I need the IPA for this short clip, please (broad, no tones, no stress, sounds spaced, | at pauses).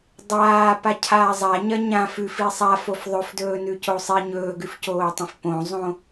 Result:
dˤ aː p a cʰ aː zˤ a ɲ ɐ ɲ ã f ʉ f i sˤ a f o f ðˤ ɵ f d ɵː n ʉ c o sˤ i ɲ ɵː ɡ ʉ f c oː tˤ ɐ̃ f p õ zˤ õ